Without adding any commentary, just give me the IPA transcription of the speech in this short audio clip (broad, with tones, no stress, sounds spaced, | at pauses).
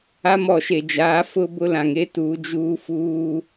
a˦ m ɔ˨ ʃ e˨ d͡ʒ aː˨˦ f ʊ˦ b ʊ˦ l ã˨ ŋ e˦ t uː˨˦ d͡ʒ uː˦ f uː˦